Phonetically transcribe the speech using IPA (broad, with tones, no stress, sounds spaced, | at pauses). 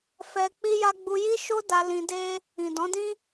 f ɛ˧ k͡p i˦ j a˦ ɡ͡b u˧ j i˦ ʃ o˦ d a˧ l ĩ˧ d e˦ | ĩ˨ d ɔ̃˨˦ d ĩ˦